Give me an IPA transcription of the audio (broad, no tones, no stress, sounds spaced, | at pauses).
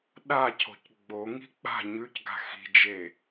ɗ a cʰ o̤ c ɡ͡b o ŋ i̤ k͡p a̤ ɲ ʉ c ɡ a̤ x i̤ d͡ʒ e